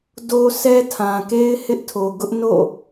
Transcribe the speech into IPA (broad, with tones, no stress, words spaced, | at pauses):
do˦sɛ˦ tʰã˨ke˦ɪ̯ hɪ˦ʔtʰo˨ɡʊ˦ʔ no̰˦˨